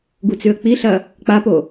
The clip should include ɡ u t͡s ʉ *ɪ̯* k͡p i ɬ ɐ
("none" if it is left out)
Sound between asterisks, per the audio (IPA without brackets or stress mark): ə̯